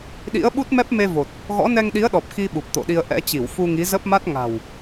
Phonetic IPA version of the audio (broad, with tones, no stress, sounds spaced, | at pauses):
ɗ ḭ˧˥ ə̯ ɓ u˦˥ t̚ m ɛ˦˥ p̚ m e˧ v o˨˩ t̚ | ɣ ɔ̰˧˥ n ɛ˧ ŋ ɗ i˨˦ ə̯ ɗ ɔ˨˩ p̚ x i˧ ɓ u˨˩ p̚ t̪ o̰˧˨ ɗ i˧ ə̯ ʔ ɛ̰˧˥ t͡ɕ i˧˩ w f u˧ ŋ i˨˦ z ə˦˥ p̚ m a˦˥ t̚ ŋ a̤˨˩ w